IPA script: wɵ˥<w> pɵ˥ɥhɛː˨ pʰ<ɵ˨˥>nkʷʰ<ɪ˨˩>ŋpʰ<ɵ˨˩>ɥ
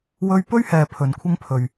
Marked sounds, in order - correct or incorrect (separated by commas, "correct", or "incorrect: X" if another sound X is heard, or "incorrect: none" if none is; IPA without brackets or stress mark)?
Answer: incorrect: ɥ, incorrect: ɵ˨, incorrect: ɪ˥, incorrect: ɵ˨